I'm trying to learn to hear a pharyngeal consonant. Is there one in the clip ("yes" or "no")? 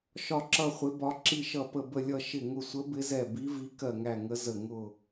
no